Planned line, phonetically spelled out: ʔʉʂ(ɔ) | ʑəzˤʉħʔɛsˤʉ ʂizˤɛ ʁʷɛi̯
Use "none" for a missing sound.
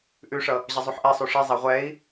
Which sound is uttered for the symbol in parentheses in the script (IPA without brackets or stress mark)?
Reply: ʌ